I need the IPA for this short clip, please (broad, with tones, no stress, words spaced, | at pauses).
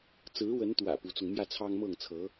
t͡sɹ̩˧˥wə˧˥nt̪wä̰˨˩ pu˧˥t͡sʊ˧ŋ mjä˥˩t͡sʰɑ˥ŋmɤ˥˩ŋt͡sʰɤ˧˥